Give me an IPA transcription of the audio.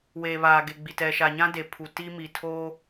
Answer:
w eː˨ β aː˨ ɡ e˨ ɡ͡b i˨ t ɛ˨ ʃ a˨ ɲ ã˦ d e˨ pʰ u˨ t i˦ m i˨ tʰ o˦

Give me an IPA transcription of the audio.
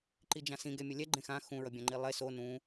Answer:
ǃ i d͡ʒ ã s ĩ ɡ ɛ mʲ ʌ lʲ ɛ ɡ͡ǃ ẽ x ã x ũ ɹ ʌ bʲ ã ŋ͡ǃ i lˠ e s o n ũ

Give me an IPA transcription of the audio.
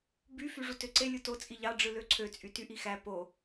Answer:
b y f y ʐ u t ø ǀ e lʲ u t o t͡sʼ i ʎ ɑ ɖ͡ʐ ɯ l ø ǀʰ ø t͡sʼ y t y ʔ i x æ p o

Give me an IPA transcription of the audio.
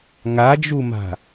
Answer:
ŋ a d͡ʒ u m a̤

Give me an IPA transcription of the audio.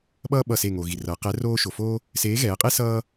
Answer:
ɓ ʌː˥ ɓ ʌ˧˩ s e˧˩ ŋ o˩ ɣ i˩ r ʌː˩˧ q ɛ˨˥ r oː˥ ʃ o˩ f o˥ | s eː˨˥ ɣ ɛː˩˧ qʼ e˥ s ʌː˥

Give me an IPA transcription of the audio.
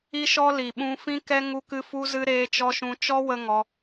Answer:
i˦ ʃ ɔ˦ l i˨ ɓ ũ˧ f ĩ˦ k ɛ˦ ŋ u˦ k ɨ˦ f u˦ z ɨ˦ ɾ eː˧ t͡ʃ ɔ˧ ʃ ũ˧ t͡ʃ ɔ˦ w ə˦ ŋ ɔ˧

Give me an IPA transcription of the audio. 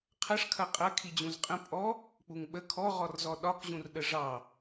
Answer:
qʰ ɐ ʂ kʰ ɐ qʼ ɐ kʰ i d͡ʑ ũ z qʼ ə̃ pʼ ɔ | k͡p u ŋ ɓ ə kʰ ɔ ʁ ɔ r z ɔ ɗ ɒ k ʑ ũ r ɗ ə ʐ ɑ

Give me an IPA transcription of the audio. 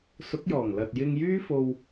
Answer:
s ʊ˨˥ k̚ j ɔː˨˩ ŋ l ɐ˨ t̚ j ɪ˧ ŋ j yː˥ f o˧ w

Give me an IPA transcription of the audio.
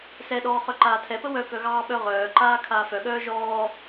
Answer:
s ɛ ɗ ɔː χ œ ǃ aː tʰ ɛ p ə w œ k œ ɣ ɑː ɓ œ ʁ œː ǃ aː kʰ aː f œ ɠ œː ʒ ɔː

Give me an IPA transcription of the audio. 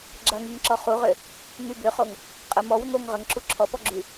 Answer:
ɡ͡ǁ ɐ ŋ i ŋ ǁ ɔ χ u ʁ ø | ŋ y b ʏ χ o ŋ | qʼ ə m ɔ w ʏ ŋ o ŋ ʁ ə ŋ ǁ u ǁʰ ɔ p ɔ ɡ͡ǁ y

